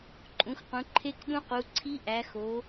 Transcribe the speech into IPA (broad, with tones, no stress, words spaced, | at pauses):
ǃʼũ˩˧xqũ˩˧ ǃʰe˧˥kɗũ˧˥qu˩˧ǀʰi˧˥ ʔæ˩˧xo˩˧